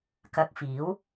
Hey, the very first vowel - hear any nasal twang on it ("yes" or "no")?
no